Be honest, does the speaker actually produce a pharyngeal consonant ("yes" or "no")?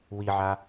yes